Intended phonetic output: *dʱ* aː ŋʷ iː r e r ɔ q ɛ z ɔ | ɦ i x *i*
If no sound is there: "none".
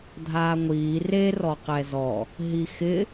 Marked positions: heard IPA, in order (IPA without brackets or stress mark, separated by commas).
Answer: dʱ, ɪ